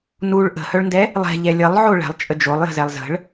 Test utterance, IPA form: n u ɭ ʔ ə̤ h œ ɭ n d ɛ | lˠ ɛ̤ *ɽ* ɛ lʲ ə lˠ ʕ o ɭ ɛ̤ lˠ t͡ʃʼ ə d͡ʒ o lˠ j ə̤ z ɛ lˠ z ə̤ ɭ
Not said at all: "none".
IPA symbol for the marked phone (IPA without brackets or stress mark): ʎ